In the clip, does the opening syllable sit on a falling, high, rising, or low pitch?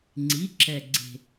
rising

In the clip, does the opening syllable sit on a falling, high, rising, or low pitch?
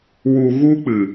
low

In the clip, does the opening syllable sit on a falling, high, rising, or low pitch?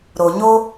low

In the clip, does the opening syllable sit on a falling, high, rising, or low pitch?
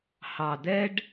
low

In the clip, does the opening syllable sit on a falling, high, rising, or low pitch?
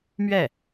falling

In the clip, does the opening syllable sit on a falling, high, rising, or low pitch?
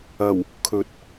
low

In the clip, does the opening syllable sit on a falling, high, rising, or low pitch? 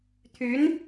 rising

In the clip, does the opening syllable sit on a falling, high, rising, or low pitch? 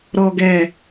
low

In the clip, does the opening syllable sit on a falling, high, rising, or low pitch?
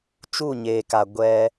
falling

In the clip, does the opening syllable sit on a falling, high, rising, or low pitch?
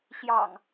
low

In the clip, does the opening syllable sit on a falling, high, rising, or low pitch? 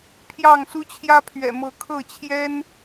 falling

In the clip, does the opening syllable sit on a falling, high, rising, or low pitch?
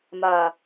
low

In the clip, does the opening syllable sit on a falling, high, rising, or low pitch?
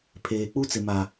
low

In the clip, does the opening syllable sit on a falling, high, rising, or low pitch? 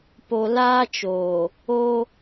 low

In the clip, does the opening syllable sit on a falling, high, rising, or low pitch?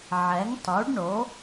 rising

